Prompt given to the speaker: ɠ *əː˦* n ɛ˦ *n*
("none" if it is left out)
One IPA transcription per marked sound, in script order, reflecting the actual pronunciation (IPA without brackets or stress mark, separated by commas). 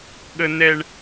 ə˦, ɳ